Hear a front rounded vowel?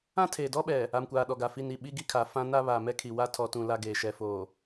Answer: no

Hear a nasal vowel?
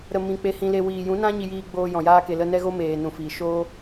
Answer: yes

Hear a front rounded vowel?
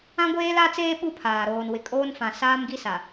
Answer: no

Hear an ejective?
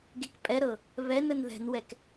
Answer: yes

